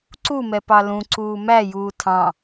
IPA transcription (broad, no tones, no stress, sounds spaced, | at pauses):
ǀ u m ɛ p ɑ l ũ ǀ uː m æ j uː tʰ ɑ̃